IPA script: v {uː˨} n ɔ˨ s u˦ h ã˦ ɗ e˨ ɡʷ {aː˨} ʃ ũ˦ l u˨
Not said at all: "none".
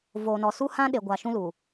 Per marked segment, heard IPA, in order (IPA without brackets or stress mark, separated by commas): oː˨, a˨